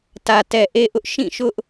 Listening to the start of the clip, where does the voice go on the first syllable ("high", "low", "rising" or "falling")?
low